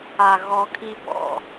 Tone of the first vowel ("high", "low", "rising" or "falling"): low